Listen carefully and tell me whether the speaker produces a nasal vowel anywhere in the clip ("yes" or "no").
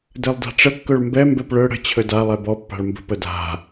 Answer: no